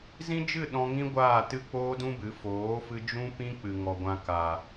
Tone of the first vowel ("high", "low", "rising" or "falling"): high